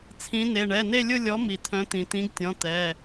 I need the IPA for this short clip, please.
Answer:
t͡sʰĩ˨˥ne˩˧˩ ɳɛ˩˧˩ne˥˧lʲʊ˥˧lʲɔ˨˥ mi˩t̪ʰœ̃˨˥ t̪ĩ˩t̪ĩ˨˥ɡtʲɔ̃˩˧˩ t̪ɛ˩˧˩

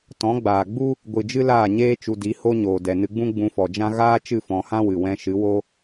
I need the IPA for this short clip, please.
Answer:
tɔ̃˨˦ɡ͡baː˨ɡ͡bu˦ | ɡʷɨ˨d͡ʒɨ˦ laː˦˨ɲeː˦ t͡ʃu˧di˨˦ ho˦ɲoː˨ dɛ˨nɨ˧ɡ͡bũ˦ ɡ͡bũ˧fɔ˨d͡ʒã˦ ɣaː˦ t͡ʃɨ˦˨fɔ̃˨hã˦ wɨ˨wɛ̃˧ʃɨ˨˦wo˦

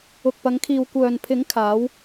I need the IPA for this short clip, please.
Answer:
ʊ˨k̚pɐ˨˧ŋkʰiː˨w kʷœː˨npʰɪ˨˥ŋkʰaː˨˧w

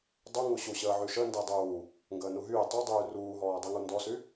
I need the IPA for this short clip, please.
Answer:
dˤu ŋuɕu ɕəːʕyʃə ndedˤuː | ŋɡəːnuɦyː tˤudˤyː ruːɦɔːdˤyŋu ndɔsy

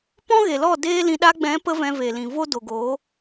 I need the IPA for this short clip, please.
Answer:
pɔ̃˦ɣe˨lɔ˦˨ deː˦lĩ˧ ɗa˧ɡ͡bɛ̃˨˦pə˧ vɛ̃˧ve˨lĩ˨vo˦ do˨ɡoː˨˦

